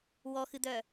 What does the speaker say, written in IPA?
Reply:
wɔxɨd̪œ

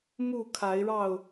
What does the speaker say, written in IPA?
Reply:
mu˥˨kʰa˨˦ɪ̯ɻɑ˥˨ʊ̯

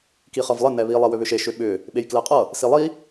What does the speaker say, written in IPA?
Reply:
kiχʌvlˠɪ nɛβi lˠɛwʏβʏʃe ʃʏɓʏ | ɓejklɛqʼʌ | silˠi

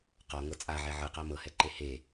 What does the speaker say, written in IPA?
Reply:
qɔŋɤ t͡sʼaʕɛ ʕɯqa mɤhɛǃe he

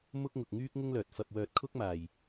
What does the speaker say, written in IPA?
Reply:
mʊ˥k̚ŋʊ˧k̚ ŋyː˥k̚ŋʊ˥ŋlœː˧t̚ fɐ˧p̚wœː˧t̚kʰʊ˥k̚ maː˧j

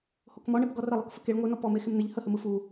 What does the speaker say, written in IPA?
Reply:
hokmɔɳep ɡɔrəlˠɯk fəkeɭ ŋʷɯnɔ pɔme xɪmnəʎ həhə mɯfu

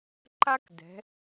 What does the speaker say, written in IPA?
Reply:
ǃa˥k dɛ̤˩˧

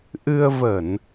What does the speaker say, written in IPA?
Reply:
ʔɨ˧ə̯və˧˩˨n

